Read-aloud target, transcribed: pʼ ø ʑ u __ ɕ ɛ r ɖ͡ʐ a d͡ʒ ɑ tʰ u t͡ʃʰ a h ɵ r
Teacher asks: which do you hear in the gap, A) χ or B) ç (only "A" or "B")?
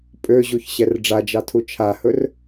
B